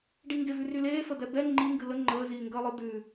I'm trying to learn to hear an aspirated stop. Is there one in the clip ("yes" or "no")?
no